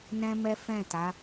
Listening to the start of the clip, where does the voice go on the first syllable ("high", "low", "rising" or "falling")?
high